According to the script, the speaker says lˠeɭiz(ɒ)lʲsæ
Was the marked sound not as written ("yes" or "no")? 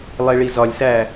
no